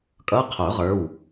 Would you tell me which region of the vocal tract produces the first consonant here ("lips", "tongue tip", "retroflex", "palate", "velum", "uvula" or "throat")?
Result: velum